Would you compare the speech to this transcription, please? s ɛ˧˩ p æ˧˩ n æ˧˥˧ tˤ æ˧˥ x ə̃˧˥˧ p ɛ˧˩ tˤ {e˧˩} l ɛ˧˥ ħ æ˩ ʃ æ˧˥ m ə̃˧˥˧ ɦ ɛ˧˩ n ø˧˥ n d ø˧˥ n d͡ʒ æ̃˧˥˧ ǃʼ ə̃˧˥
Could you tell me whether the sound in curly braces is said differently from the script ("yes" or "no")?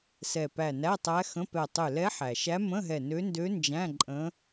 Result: yes